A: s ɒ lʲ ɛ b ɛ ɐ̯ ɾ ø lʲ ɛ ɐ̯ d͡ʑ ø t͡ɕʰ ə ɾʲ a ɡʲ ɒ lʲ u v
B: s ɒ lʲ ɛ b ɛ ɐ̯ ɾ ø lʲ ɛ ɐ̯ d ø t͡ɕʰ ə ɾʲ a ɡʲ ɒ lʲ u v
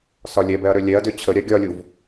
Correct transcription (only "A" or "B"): B